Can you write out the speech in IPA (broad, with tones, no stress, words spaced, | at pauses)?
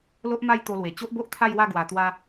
lo˦ʔma˥˧j t̪o˧lwe˨˩ t͡ɕo˦ʔbo˦ʔt̪ʰa˥˧jwa˥˧ ɡwa˧t̪wa˦